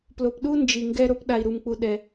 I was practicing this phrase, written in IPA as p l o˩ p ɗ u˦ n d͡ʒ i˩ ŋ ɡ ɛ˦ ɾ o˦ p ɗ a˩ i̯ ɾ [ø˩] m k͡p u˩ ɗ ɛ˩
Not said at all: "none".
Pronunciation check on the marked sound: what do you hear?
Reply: u˩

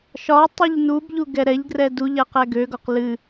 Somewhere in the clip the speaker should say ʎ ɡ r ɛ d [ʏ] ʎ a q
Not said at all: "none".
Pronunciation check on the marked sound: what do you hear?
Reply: u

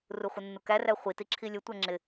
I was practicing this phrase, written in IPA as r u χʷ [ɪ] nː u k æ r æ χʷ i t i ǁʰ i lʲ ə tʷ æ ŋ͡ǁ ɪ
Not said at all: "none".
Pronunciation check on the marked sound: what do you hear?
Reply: ə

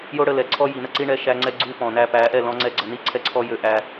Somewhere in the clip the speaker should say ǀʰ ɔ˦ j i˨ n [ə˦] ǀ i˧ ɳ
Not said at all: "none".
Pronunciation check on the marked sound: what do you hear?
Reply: ə˦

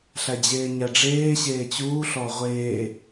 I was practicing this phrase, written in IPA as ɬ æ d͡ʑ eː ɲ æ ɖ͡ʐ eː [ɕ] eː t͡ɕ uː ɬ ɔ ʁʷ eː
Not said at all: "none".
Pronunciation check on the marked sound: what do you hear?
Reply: ɕ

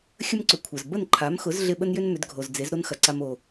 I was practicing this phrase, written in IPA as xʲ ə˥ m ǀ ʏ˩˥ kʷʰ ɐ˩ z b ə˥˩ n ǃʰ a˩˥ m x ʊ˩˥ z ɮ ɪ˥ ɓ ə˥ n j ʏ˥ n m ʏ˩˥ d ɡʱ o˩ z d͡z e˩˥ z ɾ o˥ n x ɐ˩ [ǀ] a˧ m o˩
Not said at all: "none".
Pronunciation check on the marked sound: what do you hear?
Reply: ǀ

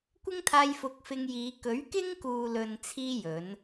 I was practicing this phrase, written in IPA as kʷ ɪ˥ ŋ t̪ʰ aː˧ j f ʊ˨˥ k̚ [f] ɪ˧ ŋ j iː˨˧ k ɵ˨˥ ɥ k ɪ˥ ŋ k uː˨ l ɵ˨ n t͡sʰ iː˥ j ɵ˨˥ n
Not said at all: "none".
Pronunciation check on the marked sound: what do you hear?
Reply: f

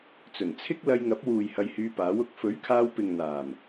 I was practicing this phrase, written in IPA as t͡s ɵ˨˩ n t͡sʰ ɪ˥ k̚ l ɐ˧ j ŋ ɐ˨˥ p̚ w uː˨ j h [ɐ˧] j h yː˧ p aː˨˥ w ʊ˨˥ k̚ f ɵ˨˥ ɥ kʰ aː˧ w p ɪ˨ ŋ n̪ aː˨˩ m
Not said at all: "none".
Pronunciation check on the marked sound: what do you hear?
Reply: ɐ˧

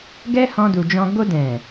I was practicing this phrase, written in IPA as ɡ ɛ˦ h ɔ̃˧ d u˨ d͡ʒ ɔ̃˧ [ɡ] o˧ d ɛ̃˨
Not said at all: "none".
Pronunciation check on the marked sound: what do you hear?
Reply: ɡ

